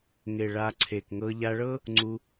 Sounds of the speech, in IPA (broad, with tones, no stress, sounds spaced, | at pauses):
ŋ e˨ ɭ a˧ ǀʰ e˨ k ŋ ɤ˧ ʎ a˧ ɭ ɤ˦ | ŋ͡ǀ u˧